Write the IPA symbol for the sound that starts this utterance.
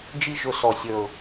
d͡ʒ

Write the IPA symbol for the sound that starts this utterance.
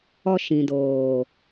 ɔ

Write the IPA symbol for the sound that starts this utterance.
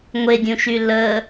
ŋʷ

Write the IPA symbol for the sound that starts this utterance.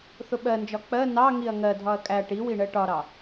θ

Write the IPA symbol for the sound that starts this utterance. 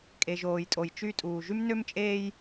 kʼ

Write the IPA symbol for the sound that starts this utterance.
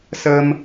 s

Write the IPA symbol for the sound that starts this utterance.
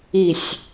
i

